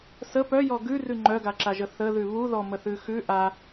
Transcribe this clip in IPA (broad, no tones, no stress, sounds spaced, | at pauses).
s ə p œ j ɔ ɡ ʉ r ʉ ŋ͡ǃ œ ɡ a ǁ a ʒ ə θ ə ð ʉ β u ð ɔ m ə θ ʉ x ʉ ʔ a